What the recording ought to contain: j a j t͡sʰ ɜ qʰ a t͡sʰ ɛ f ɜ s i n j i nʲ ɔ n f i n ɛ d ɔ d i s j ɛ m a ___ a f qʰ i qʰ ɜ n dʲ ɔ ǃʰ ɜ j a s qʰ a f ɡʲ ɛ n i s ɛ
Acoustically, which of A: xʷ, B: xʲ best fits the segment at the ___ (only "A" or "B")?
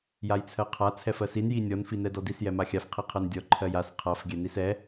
B